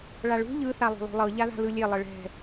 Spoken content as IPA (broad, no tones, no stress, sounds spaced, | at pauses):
ɭ a ɭ ṳ ʎ ɯ θ a lˠ o̤ lˠ o̤ lˠ ɤ ʎ a ð a̤ l ɯ lʲ e lˠ ɤ ɭ ɛ̤